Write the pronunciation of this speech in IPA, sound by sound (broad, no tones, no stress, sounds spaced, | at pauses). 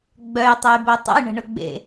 ɡ͡b œ j tˤ o j b œ tˤ ə̰ j ɳ ə̤ ɳ ʊ ɡ͡b ḛ